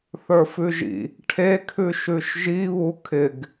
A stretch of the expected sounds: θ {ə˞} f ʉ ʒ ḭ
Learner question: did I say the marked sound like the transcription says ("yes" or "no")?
yes